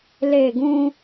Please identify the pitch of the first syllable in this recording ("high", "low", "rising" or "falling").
falling